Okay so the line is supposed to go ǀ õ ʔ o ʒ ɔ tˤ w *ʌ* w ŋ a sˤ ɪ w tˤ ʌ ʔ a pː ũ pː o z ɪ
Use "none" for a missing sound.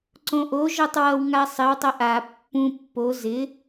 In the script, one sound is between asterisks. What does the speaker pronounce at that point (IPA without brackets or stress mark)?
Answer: ʌ